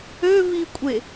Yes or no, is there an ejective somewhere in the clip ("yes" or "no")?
yes